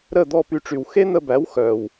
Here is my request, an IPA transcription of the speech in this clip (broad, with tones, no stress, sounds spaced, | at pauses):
ɾ ə˥˩ d̪ ɔ˥˩ p y˧ ʈ͡ʂ y˩ w x e˥ n̪ ə˧ b æ˩˥ w x œ˩ w